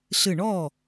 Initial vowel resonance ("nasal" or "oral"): oral